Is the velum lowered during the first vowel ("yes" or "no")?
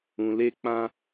yes